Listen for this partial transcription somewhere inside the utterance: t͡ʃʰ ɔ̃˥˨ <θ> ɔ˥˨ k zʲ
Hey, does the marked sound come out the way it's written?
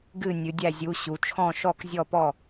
no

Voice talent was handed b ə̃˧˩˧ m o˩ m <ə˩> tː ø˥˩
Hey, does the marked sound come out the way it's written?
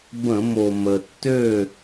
yes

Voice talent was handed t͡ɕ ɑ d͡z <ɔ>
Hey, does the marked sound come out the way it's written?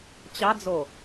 no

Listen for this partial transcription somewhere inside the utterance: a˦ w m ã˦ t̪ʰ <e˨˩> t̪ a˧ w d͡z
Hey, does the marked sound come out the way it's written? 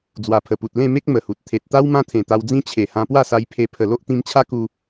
no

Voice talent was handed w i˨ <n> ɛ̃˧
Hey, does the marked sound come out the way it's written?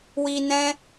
yes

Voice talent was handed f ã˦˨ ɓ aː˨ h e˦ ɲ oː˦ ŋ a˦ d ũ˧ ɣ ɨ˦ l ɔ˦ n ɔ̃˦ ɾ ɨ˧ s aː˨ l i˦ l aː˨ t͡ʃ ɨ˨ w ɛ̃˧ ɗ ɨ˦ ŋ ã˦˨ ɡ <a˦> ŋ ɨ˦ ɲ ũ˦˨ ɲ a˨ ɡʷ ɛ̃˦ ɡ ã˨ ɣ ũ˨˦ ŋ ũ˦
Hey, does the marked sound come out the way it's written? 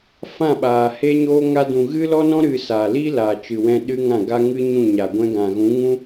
yes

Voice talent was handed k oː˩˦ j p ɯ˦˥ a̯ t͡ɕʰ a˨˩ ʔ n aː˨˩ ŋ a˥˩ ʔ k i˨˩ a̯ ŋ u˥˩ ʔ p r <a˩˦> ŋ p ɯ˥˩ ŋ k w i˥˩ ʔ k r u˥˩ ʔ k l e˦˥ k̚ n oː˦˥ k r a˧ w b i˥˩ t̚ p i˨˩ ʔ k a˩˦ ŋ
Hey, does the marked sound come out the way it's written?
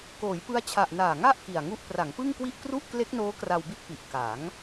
yes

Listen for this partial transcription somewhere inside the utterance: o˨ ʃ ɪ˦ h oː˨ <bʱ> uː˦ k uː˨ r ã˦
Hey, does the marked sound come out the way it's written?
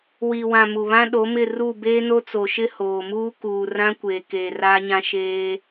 no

